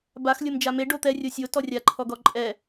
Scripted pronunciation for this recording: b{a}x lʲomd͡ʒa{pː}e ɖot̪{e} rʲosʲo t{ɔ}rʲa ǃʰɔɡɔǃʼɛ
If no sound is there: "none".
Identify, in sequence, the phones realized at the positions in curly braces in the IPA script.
a, m, ɛ, ɔ

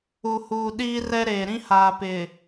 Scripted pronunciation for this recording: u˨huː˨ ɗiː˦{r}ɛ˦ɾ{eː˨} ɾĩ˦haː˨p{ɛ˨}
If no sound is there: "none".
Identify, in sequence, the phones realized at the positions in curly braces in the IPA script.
r, eː˨, ɪ˨

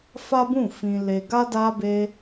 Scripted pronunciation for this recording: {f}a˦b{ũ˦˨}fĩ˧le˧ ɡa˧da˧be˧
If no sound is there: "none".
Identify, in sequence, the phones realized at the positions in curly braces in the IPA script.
f, ũ˦˨

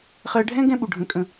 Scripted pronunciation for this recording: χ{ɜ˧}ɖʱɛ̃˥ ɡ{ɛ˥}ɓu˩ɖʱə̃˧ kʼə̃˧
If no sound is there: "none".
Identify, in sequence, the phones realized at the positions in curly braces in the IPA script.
ɜ˧, ɛ̃˥

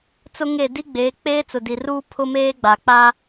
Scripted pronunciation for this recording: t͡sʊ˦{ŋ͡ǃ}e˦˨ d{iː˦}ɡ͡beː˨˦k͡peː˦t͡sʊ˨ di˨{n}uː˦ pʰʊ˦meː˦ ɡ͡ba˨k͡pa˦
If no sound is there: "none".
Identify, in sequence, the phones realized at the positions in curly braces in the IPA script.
ŋ, i˦, r

